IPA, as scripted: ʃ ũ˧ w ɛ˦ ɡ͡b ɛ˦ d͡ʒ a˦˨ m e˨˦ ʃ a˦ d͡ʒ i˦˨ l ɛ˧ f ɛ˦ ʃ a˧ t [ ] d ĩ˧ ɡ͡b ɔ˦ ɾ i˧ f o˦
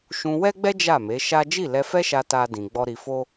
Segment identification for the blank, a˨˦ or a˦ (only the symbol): a˦